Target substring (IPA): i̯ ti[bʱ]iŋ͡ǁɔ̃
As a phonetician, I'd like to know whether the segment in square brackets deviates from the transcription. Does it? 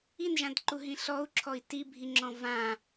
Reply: no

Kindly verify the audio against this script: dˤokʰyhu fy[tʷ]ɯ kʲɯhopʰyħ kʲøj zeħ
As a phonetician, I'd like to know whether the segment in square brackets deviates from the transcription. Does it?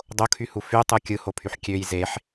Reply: yes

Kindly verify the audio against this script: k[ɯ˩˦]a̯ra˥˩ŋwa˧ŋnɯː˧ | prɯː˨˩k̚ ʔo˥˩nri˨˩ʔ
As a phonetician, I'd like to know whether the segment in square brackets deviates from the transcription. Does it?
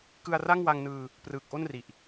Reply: yes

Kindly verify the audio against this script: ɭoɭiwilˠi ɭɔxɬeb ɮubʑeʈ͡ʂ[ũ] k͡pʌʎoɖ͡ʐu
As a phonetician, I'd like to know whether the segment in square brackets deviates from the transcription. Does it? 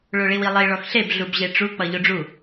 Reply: yes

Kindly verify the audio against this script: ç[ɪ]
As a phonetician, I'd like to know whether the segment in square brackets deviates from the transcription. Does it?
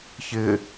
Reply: no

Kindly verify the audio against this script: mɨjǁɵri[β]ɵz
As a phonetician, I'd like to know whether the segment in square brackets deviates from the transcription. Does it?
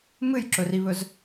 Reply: no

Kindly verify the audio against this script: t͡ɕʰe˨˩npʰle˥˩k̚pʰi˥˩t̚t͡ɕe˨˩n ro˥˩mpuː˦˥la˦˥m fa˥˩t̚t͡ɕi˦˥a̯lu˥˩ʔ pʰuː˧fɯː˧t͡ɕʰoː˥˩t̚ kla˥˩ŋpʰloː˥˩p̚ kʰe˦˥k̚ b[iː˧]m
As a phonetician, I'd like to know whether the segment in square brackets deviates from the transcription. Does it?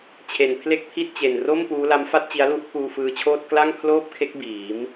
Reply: yes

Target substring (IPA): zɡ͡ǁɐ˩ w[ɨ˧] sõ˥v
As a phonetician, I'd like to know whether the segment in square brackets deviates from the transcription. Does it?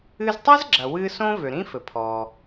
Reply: no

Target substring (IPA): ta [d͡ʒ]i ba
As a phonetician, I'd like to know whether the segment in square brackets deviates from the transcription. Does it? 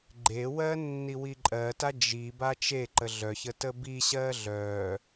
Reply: no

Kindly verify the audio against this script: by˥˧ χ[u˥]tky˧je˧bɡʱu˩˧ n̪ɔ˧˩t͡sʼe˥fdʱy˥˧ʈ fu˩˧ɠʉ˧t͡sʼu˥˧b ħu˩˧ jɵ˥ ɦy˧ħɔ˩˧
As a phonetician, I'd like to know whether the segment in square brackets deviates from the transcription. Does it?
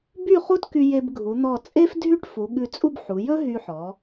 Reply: no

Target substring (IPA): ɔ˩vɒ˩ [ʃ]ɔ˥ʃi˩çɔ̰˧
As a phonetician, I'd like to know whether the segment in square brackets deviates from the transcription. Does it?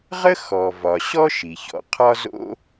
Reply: yes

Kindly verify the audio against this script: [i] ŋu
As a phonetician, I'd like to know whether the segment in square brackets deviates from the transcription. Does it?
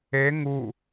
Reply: yes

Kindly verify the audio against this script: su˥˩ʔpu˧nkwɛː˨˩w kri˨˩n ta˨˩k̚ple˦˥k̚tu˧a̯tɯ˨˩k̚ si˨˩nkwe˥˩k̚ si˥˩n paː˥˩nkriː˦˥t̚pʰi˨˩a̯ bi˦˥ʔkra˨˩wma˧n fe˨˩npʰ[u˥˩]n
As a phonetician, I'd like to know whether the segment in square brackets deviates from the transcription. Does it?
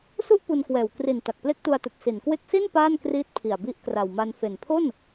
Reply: yes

